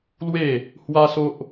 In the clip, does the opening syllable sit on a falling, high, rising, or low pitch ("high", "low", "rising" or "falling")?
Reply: falling